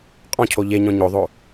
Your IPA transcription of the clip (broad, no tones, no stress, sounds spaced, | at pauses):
qʼ ɔ̃ cʰ o ʎ e ɲ ɔ̃ ɲ o ðˤ o